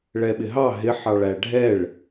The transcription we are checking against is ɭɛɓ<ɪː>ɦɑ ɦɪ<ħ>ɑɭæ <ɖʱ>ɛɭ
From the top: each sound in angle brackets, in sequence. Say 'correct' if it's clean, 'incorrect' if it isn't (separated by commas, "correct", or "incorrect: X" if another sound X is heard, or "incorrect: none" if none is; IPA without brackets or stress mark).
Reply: incorrect: ɪ, correct, correct